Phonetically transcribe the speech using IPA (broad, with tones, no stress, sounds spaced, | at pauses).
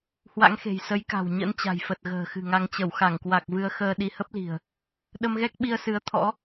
h w a̰˧˥ ŋ x e̤˨˩ j s ə˨˦ j k a̤˨˩ w ɲ ə̰˧˥ n t͡ɕ a̤˨˩ j f ə˨˩ t̚ ɣ ə̤ː˨˩ x ɨ̤˨˩ ŋ a˧ ŋ t͡ɕ ə˧˩ w x a˧˩ ŋ k w a˨˩ k̚ v ɨ˧ ə̯ x əː˧ ɗ i˧ h ə˦˥ p̚ l i̤˨˩ ə̯ | ɗ ə˧ m ɣ ɛ˦˥ k̚ ɓ i˧ ə̯ s ɨ˨˦ ə̯ t̪ʰ ɔ̰˧˥